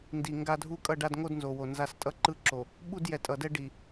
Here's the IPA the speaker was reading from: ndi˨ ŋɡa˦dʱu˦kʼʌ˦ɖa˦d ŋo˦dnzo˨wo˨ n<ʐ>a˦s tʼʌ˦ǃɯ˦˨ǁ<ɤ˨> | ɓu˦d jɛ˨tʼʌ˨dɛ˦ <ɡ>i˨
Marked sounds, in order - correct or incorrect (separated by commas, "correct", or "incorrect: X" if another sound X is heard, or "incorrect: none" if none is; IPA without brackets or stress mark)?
incorrect: z, incorrect: o˨, incorrect: ɖ